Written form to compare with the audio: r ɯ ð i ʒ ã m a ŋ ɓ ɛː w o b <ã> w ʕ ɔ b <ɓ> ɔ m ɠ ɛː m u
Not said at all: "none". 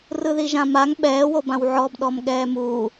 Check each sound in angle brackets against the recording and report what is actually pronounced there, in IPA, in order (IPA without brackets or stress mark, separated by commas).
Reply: ã, ɗ